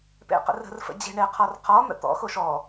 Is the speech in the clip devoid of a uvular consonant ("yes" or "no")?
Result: no